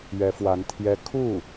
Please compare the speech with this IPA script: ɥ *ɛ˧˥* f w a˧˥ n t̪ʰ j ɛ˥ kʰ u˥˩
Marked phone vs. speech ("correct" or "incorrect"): correct